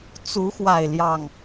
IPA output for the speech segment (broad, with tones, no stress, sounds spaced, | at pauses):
t͡s u˨˦ x w a˨˩ ɪ̯ l j ɑ˥˨ ŋ